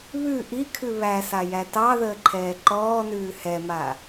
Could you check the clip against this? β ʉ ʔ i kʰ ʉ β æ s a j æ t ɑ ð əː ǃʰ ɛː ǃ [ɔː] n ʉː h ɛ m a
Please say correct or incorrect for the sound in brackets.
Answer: correct